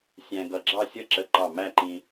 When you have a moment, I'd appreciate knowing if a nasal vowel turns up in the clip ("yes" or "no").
yes